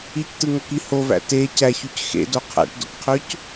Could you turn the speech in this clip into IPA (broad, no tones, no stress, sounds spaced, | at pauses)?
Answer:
i c t ɯ ŋ o k i h o v æ̰ t e c æ ç y c x ḛ d o qʰ æ̰ ʈ d o̰ k qʰ ø c